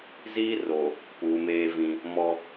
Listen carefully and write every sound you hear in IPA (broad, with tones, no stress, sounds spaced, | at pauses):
z iː˦ r o˨ | p uː˨ m eː˦ v ĩ˦ | m ɔ˦